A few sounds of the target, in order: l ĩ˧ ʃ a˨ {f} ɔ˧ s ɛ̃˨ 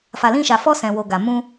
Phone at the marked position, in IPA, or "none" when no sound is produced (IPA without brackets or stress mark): f